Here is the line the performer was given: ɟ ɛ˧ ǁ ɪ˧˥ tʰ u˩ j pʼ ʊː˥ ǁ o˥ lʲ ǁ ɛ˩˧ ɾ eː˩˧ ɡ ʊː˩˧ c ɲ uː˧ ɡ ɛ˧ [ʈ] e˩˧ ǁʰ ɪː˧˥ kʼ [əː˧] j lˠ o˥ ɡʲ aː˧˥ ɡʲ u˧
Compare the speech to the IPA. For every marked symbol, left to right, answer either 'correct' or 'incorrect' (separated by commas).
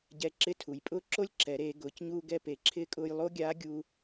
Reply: incorrect, incorrect